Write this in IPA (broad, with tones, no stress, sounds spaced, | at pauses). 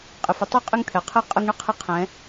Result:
qʼ ɪ˩ f ə˩˧ tˤ o˧˥ qʼ ɪ˧ ŋ t̪ʰ ɛ˩ qʰ ɛ˧ qʼ ə˧ ŋ ɳ ə˥ qʰ ɪ˧˥ qʰ ɛ̃˩˧